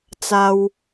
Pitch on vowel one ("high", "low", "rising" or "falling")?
high